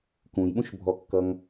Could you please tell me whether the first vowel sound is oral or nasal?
nasal